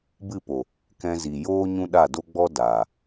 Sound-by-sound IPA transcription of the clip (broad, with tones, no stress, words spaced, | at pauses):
bɨ˦˨po˨ | kɛ̃˧zi˨ joː˦ ɲũ˦ɗa˦˨do˦ɡ͡bɔ˦ daː˨